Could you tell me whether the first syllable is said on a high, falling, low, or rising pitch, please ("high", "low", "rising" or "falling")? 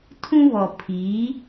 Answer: high